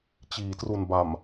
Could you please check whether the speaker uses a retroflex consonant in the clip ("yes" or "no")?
no